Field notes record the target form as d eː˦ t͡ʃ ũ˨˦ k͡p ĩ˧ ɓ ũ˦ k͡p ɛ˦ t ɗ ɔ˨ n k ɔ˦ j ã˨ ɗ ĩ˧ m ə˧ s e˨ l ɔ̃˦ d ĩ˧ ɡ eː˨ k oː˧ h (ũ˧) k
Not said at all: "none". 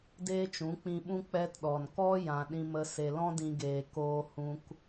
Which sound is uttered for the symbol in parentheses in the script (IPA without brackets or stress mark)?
ũ˧